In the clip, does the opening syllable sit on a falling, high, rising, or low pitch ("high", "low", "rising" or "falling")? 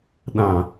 low